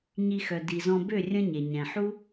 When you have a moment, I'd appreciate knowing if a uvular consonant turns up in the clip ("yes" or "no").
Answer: no